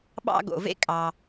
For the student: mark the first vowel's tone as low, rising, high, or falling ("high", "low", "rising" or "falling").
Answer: high